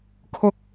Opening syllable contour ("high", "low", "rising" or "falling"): high